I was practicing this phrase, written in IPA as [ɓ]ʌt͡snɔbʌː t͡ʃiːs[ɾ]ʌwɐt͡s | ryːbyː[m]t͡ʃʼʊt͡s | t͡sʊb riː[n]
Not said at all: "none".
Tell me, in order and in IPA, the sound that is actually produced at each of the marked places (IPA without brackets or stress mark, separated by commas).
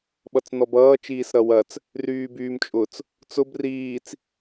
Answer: ɓ, ɾ, m, t͡s